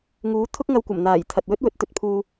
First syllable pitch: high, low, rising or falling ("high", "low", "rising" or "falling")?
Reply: rising